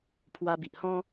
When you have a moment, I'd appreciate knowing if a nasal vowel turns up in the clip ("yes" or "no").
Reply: yes